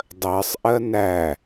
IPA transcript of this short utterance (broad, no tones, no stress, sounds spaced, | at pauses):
dˤ ɜ sˤ ʔ ɜ n æ